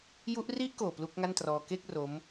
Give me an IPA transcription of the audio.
ju˦˥ʔ ri˥˩ʔkoː˨˩ plu˦˥k̚ŋa˥˩ntrɔː˧ ke˥˩k̚ ro˦˥m

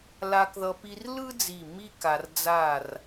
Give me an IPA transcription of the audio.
la˧kðʌ˧ pi˧r lɯ˥d͡zi˧˩ mi˥ka˧rd͡za˥˧r

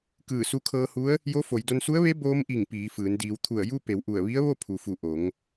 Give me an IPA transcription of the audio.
kɯː˧˩su˧kʰɤː˧hu˧˥ə̯ | jo˧˥fo˩˧jdo˧n su˧˥ə̯ʋe˧˥ boː˧˥mʔi˧˩ŋ piː˩˧fɯː˩˧n diː˩˧wt̪ʰu˧˩ə̯ju˥˨ pe˩˧wʔu˧˩ə̯ʋi˧˥ə̯ ʋo˥˨pʰu˩fu˧˩ ʔo˩˧ŋ

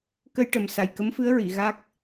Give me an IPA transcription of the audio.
kə˧jʈə˨˩msa˨˩j kə˧˥mfɨ˧˥ə̯ɹi˨˩˨ ɣa˦˥k̚

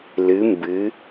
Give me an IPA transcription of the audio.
lɨ˩˧mbɨ˩˧

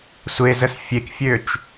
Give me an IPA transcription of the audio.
sʷezəs fʲekfʲøt͡ʃ

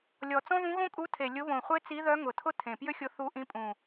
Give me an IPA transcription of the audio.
lʲɔ˨˩t͡sɔ̃˥ðũ˧˥ ɣõ˥kʼu˧˥tʰe˨˩ lʲʊ˧˥βõ˨˩χʷe˥t͡si˧˥ ðœ˧˥ŋʊ˨˩tʰʊ˥ tʰẽ˨˩pjʏ˥xʲʊ˧˥ θu˧˥ ʔĩ˧˥pʼũ˨˩

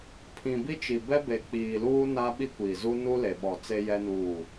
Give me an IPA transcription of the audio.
pʰĩ˨bi˦t͡ʃi˨bɛ˦ be˨k͡piː˨luː˦ na˦ɓi˦kʷiː˨zu˦ nu˦le˨ɓɔ˨t͡se˦ jɛ˦nuː˦˨

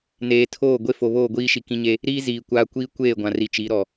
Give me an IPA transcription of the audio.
neː˨tʰoː˦˨ ɡʷe˦fo˨βoː˦˨ ɡʷiː˦ʃi˨kĩ˦ɲe˦ | ɾiː˦ ziː˨kʷaː˦ kʷiː˦kʷeː˦˨ɡʷã˨ ri˨t͡ʃi˨˦ɾɔ˨

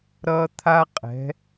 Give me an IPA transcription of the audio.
ɾʌː˦t̪ʰa˦ qʼɛ̤˨˦

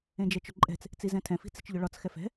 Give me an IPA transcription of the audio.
ẽd͡ʒɛt͡ʃʊǃʼɛ̤t͡s | t͡sizɛ̃tʰɛ̃ fi̤t͡si̤t͡ʃʎʊɭɒt͡s xɛfɛ̤

